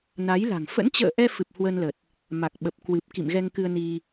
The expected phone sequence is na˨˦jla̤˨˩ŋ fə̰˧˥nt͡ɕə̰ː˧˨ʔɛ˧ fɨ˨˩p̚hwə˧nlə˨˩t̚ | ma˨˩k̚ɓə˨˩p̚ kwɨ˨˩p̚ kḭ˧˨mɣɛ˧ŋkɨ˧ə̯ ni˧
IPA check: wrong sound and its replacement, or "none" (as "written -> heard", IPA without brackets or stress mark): none